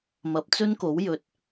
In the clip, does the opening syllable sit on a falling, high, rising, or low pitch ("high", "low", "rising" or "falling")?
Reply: rising